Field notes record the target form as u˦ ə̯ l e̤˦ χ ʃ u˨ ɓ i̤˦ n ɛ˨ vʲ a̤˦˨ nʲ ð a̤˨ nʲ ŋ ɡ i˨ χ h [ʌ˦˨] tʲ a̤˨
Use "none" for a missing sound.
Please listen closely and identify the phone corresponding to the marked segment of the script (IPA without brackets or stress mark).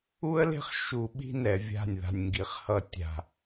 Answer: ʌ˦˨